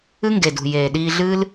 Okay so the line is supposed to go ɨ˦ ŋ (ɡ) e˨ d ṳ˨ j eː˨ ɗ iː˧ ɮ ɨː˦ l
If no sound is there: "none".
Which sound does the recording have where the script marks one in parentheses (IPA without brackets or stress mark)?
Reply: ɡ